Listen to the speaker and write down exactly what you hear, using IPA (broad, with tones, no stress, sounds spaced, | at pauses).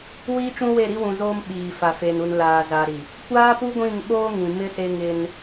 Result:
w iː˦ t͡ʃ ũ˦ w e˦˨ ɾ i˦ w ũ˨ z oː˦ m ɓ iː˨ f a˨ f e˨ n u˨ n l aː˨ z a˨ ɾ i˨ | kʷ aː˦ p u˦ ɡʷ ĩ˦˨ ŋ ɓ oː˦ ŋ ĩ˨ m ɪ˦ s e˦ ŋ ɪ˦ n